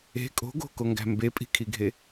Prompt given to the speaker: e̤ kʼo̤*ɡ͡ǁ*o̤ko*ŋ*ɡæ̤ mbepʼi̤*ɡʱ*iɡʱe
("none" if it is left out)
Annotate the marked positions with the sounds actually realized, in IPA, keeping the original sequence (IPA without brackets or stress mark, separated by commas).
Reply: ɡ, ŋ, kʰ